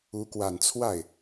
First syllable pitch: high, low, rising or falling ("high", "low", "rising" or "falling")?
rising